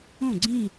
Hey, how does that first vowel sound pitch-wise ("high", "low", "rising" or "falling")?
falling